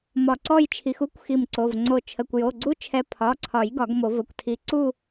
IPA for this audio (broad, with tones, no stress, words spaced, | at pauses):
mɒ˧˩ǀɔ˥˧jt͡ʃʰi˨˦x u˦˥kʷ xi˧˩mǀo˩˧˩v ŋ͡ǀo˧˩ t͡ʃʰə˩˧˩kʷjo˩˧˩ɡ͡ǀu˦˥ t͡ʃʰɛ˨˦pʰɒ˩˧˩ǀʰɒ˨˩˦j ɡɒ˨˩˦ɡmo˨˩˦və˩˧˩kʷtʰi˧˩ ǀu˥˧